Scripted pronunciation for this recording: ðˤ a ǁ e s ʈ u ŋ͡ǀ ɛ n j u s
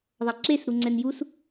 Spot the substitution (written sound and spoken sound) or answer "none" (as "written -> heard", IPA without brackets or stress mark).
ʈ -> ɾ